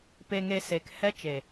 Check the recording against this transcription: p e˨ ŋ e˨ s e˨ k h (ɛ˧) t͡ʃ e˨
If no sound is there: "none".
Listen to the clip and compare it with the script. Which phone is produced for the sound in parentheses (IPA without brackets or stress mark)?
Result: ɛ˧